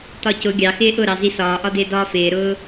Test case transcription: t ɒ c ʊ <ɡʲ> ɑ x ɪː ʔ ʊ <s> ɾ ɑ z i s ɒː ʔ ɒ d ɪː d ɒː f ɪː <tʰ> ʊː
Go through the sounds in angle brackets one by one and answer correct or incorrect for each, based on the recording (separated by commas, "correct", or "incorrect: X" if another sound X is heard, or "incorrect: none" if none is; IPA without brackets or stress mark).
correct, incorrect: none, incorrect: ɾ